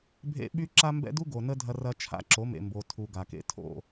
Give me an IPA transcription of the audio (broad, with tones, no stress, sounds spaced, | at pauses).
bʱ ḛ˦ ɓ y˦ ǁ a˦ m b ɛ̰˦ d u˦ ɡ o˨ n ə˦ dʱ ɐ˦ r ɐ˦ t͡ʃʰ a̰˦ ǁ o˨˦ m ḛ˨ m b o˨ tʰ u˨ ɡ a˨ k ḛ˦ tʰ o̰˦˨